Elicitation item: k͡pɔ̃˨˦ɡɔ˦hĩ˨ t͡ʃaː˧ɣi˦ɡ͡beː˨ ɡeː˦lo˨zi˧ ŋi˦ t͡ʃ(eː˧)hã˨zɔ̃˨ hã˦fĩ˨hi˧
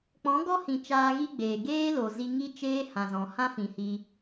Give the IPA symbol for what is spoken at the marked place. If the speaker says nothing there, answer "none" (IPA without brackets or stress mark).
eː˦